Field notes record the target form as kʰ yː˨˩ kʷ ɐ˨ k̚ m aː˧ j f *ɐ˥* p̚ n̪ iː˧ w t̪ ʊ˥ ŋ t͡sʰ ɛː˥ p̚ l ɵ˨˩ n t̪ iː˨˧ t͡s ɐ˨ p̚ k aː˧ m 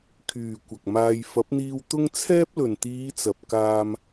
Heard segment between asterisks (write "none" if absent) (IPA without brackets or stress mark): ɐ˨˥